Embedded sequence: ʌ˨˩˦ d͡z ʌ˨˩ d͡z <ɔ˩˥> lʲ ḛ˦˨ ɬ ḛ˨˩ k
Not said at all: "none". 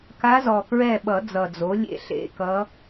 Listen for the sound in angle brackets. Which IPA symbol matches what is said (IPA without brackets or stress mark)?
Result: o˩˥